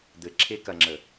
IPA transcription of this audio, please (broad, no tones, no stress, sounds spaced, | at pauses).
d̪ ɘ ǁʰ e k ɐ ŋ͡ǁ ə